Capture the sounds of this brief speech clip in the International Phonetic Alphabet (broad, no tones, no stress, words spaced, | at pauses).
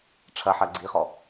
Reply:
ʈ͡ʂʰɐħɐ ɡ͡ǀiχɔ